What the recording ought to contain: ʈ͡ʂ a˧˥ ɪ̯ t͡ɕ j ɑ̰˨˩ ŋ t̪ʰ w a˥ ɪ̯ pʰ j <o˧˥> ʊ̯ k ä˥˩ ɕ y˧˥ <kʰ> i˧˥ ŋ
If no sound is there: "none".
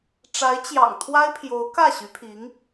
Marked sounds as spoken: o˧˥, pʰ

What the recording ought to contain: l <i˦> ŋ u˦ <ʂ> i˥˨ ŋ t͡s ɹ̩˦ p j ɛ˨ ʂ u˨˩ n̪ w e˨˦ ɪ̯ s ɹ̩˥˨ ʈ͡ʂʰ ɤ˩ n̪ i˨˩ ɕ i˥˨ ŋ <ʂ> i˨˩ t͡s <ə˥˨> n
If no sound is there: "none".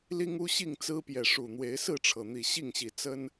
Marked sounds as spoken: i˦, ɕ, ɕ, ə˦

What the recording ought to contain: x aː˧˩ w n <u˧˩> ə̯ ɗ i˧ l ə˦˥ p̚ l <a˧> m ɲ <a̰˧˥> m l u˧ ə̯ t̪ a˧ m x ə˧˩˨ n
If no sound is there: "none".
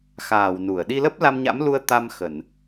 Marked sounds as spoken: u˧˩, a˧, a̰˧˥

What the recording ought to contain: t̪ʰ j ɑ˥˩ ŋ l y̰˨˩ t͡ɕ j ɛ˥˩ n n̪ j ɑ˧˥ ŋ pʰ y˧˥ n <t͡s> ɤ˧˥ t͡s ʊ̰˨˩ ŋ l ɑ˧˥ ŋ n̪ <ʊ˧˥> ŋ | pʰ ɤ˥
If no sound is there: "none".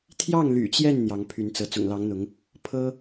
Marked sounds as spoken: t͡s, ʊ˧˥

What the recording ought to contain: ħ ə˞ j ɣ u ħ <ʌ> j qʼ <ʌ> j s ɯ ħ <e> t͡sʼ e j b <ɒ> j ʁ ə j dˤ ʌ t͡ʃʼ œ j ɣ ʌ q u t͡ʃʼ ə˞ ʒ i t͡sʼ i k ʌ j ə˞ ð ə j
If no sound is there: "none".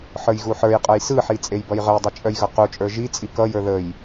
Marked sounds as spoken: ə˞, ʌ, i, ʌ

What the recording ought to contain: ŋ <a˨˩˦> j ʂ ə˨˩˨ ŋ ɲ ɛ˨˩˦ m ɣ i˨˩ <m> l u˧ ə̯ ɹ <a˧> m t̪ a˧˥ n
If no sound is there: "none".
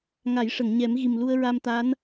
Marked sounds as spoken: a˨˩˦, m, a˧

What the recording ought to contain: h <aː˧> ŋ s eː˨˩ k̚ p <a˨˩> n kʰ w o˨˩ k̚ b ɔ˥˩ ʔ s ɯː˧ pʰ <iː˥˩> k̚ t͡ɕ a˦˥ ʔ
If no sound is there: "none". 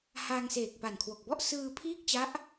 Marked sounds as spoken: aː˧, a˨˩, iː˥˩

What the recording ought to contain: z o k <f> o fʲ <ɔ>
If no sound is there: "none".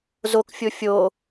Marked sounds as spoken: fʲ, o

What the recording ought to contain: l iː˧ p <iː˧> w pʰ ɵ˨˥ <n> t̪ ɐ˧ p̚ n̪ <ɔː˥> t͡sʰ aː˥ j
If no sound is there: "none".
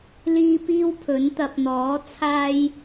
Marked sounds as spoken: iː˥, n, ɔː˨˥

